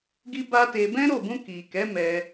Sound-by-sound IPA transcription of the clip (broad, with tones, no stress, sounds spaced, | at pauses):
ɡ i˦ b a˦ t e˧ b ɛ̃˦ ɾ o˦˨ b ũ˧ k i˨ k ɛ˨˦ m ɛ˧